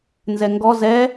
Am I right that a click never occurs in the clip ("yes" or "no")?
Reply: yes